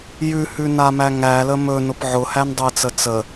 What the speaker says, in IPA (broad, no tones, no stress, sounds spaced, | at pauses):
j ʉ h ʉ n a m æ ŋ æ l ə m ɵ n ʊ p ʕ ʊ h æ n dˤ ɵ ɪ̯ t͡s ə t͡s ə